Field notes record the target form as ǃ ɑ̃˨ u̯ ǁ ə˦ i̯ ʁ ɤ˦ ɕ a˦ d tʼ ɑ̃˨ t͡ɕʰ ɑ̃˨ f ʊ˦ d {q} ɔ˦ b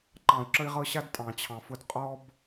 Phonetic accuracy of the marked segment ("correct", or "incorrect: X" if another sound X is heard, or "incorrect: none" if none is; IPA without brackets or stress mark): incorrect: qʼ